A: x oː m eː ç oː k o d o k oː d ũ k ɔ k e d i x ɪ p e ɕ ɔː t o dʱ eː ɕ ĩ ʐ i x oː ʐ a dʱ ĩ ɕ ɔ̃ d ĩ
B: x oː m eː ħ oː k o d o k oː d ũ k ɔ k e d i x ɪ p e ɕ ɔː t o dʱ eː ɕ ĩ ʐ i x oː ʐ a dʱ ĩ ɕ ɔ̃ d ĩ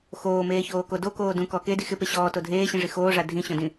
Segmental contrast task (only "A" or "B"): A